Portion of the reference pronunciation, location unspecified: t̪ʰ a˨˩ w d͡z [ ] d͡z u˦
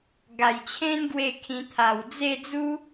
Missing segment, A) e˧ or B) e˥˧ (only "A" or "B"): B